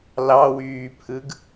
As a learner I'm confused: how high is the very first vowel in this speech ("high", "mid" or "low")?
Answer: low